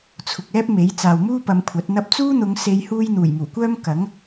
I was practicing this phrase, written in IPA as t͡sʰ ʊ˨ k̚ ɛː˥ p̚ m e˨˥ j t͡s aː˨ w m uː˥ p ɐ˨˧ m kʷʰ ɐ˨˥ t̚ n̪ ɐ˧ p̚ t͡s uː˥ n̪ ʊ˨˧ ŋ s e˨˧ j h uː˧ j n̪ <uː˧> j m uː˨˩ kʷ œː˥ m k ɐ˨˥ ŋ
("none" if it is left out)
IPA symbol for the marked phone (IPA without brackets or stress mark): uː˨˩